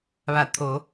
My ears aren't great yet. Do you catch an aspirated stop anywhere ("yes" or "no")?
yes